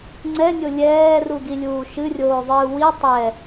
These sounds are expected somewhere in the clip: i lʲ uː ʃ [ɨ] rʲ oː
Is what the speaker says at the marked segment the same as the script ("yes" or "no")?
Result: yes